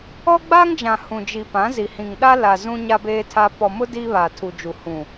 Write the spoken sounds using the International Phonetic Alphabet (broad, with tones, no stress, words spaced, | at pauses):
ɔ˦ɡ͡ba˦ŋd͡ʒã˨ hũ˨d͡ʒi˨ pã˨˦zi˨ hĩ˨ŋɗa˦ la˨ zũ˦ɲa˦ beː˦tʰa˦ pɔ˨mʊ˦ diː˦βaː˨ tʰu˨d͡ʒu˨ hũ˨